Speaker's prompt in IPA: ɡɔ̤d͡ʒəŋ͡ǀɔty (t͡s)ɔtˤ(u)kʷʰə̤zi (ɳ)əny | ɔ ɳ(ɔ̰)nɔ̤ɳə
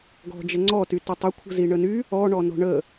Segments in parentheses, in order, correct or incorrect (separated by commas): incorrect, incorrect, correct, incorrect